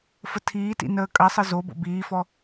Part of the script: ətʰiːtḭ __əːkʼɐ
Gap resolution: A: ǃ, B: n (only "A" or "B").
B